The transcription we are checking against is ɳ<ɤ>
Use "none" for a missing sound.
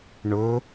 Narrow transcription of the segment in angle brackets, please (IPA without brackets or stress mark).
ɵ